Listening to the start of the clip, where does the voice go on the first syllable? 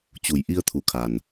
low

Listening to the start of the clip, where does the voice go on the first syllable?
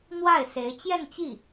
falling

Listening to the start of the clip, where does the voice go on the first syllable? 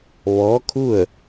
rising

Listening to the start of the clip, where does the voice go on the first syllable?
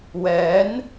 rising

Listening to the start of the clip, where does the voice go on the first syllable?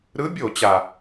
rising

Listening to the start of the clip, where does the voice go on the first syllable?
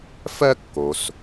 high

